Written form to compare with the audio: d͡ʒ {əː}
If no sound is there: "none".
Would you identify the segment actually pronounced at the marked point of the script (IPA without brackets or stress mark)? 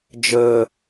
əː